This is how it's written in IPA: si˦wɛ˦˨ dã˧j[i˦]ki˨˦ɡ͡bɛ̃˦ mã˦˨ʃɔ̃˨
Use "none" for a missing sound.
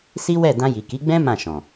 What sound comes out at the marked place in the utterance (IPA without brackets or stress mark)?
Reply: i˨